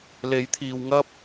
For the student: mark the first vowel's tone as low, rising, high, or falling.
rising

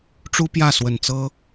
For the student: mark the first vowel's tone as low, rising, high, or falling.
high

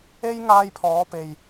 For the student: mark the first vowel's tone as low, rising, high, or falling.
high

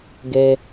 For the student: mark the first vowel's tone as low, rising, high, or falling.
high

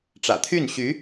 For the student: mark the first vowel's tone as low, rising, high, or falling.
low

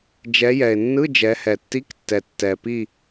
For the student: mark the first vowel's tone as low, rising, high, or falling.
rising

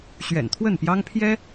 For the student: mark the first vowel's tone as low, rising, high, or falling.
low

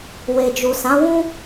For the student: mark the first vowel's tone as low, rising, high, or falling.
low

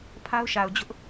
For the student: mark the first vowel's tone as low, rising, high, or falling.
high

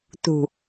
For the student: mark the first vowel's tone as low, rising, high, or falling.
low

